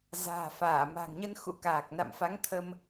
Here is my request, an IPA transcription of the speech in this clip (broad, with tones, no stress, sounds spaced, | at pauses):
z a̤ː˨˩ f aː˧˩ m a̤˨˩ ŋ ɲ ə˧ n x ṵ˧˥ k aː˨˩ k̚ n a̰˧˨ m f a˨˦ ŋ t̪ʰ ə˧ m